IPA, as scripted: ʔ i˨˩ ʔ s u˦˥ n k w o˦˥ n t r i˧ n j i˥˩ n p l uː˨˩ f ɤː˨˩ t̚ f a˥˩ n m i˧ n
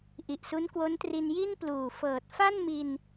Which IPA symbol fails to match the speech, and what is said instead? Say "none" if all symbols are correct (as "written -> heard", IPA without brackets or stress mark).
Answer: none